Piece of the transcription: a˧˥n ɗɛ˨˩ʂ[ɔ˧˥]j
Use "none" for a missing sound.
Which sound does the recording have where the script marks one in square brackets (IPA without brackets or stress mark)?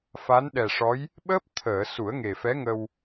ɔ˧˥